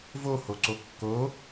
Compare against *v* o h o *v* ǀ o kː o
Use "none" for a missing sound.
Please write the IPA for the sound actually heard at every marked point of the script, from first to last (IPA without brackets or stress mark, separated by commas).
v, none